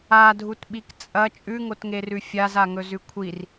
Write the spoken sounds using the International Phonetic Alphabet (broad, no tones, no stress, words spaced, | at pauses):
adʱutɓik t͡sʼɐ t͡ʃʼʉŋotŋerʉ fʲazaŋɵzʉ kʷʰir